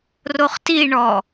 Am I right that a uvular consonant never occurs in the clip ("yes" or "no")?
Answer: no